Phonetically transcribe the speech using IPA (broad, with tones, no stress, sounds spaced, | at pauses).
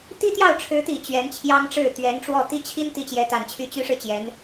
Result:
t̪ i˥ t̪ j ɑ˥˩ ʊ̯ ʈ͡ʂʰ ɻ̩˧˥ t̪ i˨˩ t͡ɕ ɥ ɛ˧˥ n t͡ɕʰ j ɑ˥ ŋ ʈ͡ʂ ɻ̩˥˩ t̪ ɥ ɛ˧˥ n ʈ͡ʂ w ɔ˥˧ t̪ i˥˩ t͡ɕʰ i˥ n t̪ i˥ t͡ɕ j ɛ˧˥ t̪ a˨˩ n t͡ɕʰ y˥˩ t͡ɕ y˥ ʂ ɻ̩˨ t͡ɕ j ɛ˧˥ n